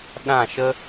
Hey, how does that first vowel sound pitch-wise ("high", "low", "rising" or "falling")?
falling